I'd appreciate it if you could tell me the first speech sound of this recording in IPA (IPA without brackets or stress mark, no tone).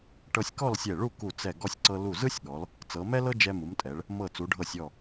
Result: ʈ